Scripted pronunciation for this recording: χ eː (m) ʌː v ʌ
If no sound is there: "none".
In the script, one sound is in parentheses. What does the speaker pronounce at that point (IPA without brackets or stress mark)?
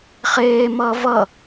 m